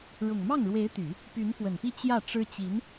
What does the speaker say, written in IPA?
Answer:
ɻʊ˨˩ŋmɑ˥˩ŋɻwe˧˥ɪ̯t̪y˨˩˦ | py˧˥nfwə˨˩npi˥˧ t͡ɕjä˥˩ʈ͡ʂɻ̩˥ t͡ɕi˧˥n

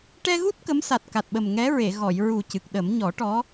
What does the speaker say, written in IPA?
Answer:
ʈɛ˧ɣu˦˥t̚ kə˧˥msa˨˩t̚ ka˨˩t̚ɓə˨˩m ŋɛ˧˥ɹe˨˩˨ ɣɔ˨˩˨j ɹu˨˩ cɨ˨˩k̚ɗə˨˩˦m ɲɔ˨˩˦ʈɔ˧˥

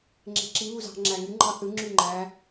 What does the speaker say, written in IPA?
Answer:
ŋ͡ǁe̤ǁi βuzɑ̤ ŋ͡ǁæŋy ŋ͡ǃɑθɯ ŋ͡ǁyŋ͡ǃæ

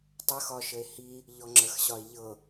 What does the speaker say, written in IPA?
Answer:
tˤəxɒʃəe̯ hi | ʎɔŋ͡ǁəxɕɒe̯ ʎɤ

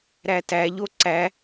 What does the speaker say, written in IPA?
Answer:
ɾætæʎo ǀæ

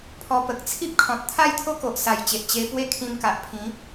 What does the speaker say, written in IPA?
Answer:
pʰɔ˧pə˨k̚ t͡sʰi˦p̚kʰɔ̃˨t̚ t̪ʰa˥˧jt̪ʰo˦ko˨ʔ sa˨˩jt͡ɕe˨ʔ t͡ɕe˧pwe˦ kʰĩ˧mka˨ʔpʰĩ˨˦

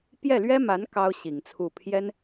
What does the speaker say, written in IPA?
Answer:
pjɛ˥˩lɥɛ˥ma˧˥n kɑ˥ʊ̯ɕi˨˩ŋt͡sʰu˥˩ pʰjɛ˥n

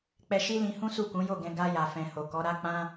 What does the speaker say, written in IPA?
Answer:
k͡pɛ˧ʃi˦lĩ˧hũ˦ su˦˨kũ˨˦jo˦˨ɡɛ̃˧ ɡa˧ ja˨fɛ̃˨ ho˨kɔ˨˦ɾa˦ k͡pã˦

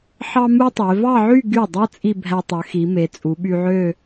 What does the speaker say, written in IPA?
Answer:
ħɑ˥mu˥tˤe˩˧ vɑ˥˧ʕy˥˧ ɡy˧˩dˤɯ˧ t͡sʼi˥˧bʱæ˧tˤø˩˧xi˩˧ me˩˧t͡sʼu˩˧ɓy˧ʕø˥˧

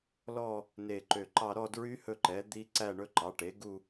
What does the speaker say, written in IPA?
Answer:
lɔ˥˧ | ne˧˩ǃø˧˩ǃɑ˥˧ ɾɔ˥˧dɹy˦˥ hɵ˥˧ǃɛ˩˥ d̪i˦˥ǀæ˥˧ ɳɵ˦˥ǃɑ˩˥ʈe˩˥ ɡu˥˧

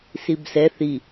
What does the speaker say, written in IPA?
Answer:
sibsɛ θi

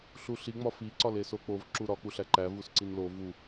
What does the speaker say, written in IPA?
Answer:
ɬuɬi ŋ͡mɒfi ǀɒlesok͡pov ǁuɾɒ k͡puɬæǃæv usǀinlo vu

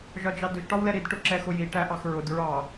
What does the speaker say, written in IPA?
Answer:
ʒɒd͡ʒɑdʊʒ ʈɒwlɛɾid ʈʊǁɛxʊji ʈæʔɑxɹʊd ɹɑ

